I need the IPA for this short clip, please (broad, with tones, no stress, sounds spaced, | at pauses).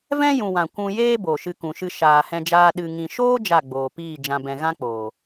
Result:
v ɛ̃˦ j ũ˨ w ã˨ kʷ ũ˧ j eː˦ b o˨ ʃ ɨ˧ k ũ˨ ʃ ɨ˧ ʃ aː˨ h ɛ̃˧ d͡ʒ aː˧ ɗ ɨ˨ ŋ ĩ˨ ʃ oː˦ d͡ʒ a˦˨ ɡ͡b oː˨ p iː˦˨ d͡ʒ ã˧ b ɛ̃˧ ɣ ã˦ k͡p oː˨